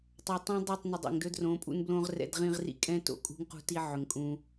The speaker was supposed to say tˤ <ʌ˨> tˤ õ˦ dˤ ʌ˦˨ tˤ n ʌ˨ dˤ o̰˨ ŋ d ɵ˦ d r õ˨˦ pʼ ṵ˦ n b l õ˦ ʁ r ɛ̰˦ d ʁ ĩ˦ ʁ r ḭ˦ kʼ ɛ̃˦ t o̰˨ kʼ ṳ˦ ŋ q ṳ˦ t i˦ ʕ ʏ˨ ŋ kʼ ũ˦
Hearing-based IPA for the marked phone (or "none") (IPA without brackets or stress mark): ʌ˨